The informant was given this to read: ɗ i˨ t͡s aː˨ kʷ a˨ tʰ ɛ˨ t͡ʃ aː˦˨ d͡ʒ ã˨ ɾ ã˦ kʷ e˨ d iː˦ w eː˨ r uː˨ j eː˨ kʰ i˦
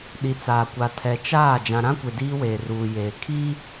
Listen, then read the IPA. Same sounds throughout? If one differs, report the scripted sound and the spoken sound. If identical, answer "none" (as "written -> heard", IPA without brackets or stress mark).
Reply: none